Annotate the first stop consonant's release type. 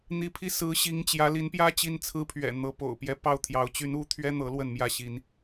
aspirated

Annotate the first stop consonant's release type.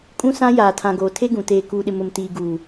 ejective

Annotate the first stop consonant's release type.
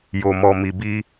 plain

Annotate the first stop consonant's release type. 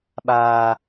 implosive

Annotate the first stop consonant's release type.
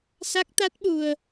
plain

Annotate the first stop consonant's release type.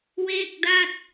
plain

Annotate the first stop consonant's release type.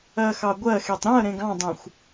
plain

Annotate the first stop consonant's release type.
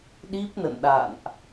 implosive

